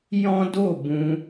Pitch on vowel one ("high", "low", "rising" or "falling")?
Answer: high